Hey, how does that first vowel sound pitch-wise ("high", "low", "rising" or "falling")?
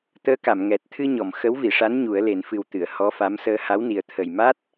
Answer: rising